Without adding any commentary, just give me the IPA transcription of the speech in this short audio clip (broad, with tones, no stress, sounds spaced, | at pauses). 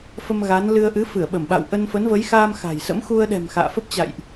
f ə˧ m ɣ a˨˦ n l ɨ˧ ə̯ ʔ ɨ˨˦ f ɨ˧˩ ə̯ ɓ ə˧˩ m ɓ a̰˧˨ w ʔ ə˧ n f ə˨˦ n v ə˨˦ j x aː˧ m x a̤˨˩ j s ə̰˧˥ m x u˧ ə̯ ɗ ɛ̤˨˩ m x a̰ː˧˨ f ə˦˥ p̚ t͡ɕ a̰˧˨ j ʔ